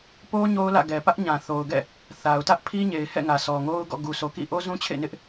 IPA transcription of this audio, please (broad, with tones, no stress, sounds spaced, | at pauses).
p o˦ ɲ o˦ ʊ̯ l ä̰˦˨ ɡ ɛ˨ p ä˦ ʔ ɲ ã˨ θ o˨ ʊ̯ ɡ ɛ̰˦˨ | θ a˨ ʊ̯ t ä˦ ʔ pʰ i˦ ɲ e˨ ɪ̯ h ɛ̰˦˨ ŋ ä˨ s ɔ˨ ŋ o˦ ʊ̯ ɡ ɔ̰˦˨ ɡ u˨ s o˨ k ḭ˦˨ ʔ o˦ z ũ˦ t͡ɕʰ ḛ˦˨ n ɪ˦ ʔ